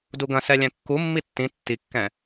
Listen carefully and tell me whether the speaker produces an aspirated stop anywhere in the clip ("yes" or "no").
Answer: no